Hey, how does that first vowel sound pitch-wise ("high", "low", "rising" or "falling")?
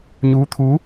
rising